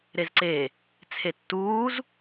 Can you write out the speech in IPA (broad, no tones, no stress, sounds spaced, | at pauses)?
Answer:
ɾ e z ǀ e | t͡sʰ e tː uː z